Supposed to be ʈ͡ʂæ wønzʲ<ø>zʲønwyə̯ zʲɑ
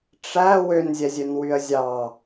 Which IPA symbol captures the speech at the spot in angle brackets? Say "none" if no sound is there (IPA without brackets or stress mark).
ɛ